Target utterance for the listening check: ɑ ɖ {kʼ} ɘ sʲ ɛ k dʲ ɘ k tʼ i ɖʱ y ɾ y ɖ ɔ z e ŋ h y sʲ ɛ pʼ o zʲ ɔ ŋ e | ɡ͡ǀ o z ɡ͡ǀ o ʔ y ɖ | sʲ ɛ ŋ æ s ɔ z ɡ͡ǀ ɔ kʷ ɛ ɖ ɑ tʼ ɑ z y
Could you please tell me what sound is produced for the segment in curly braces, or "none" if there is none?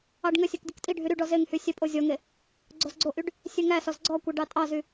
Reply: ŋ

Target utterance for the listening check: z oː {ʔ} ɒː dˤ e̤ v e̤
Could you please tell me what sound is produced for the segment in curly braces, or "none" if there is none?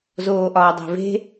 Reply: ʔ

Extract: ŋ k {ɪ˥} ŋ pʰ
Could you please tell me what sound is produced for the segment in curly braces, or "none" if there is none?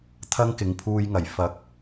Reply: ɪ˨˥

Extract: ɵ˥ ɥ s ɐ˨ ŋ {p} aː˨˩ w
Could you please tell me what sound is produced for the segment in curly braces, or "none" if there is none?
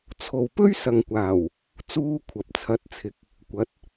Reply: kʷ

